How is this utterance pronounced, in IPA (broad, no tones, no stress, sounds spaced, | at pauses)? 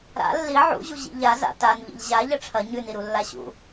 ɾ a̰ lː i ʕ ṵ ʑ u ʑ ḭ ʎ a z a̰ t a n ʎ ḭ ʎ ʑ a ʎ ɐ ʈ͡ʂʰ ɐ ɲ ʉ n i ɾ u lː a ɕ ṵ